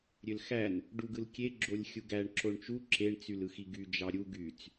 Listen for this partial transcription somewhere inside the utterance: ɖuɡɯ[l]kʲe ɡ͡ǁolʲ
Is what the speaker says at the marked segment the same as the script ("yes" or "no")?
yes